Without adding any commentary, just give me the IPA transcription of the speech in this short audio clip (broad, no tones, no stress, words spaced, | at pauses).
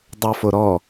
dˤofoɾɔ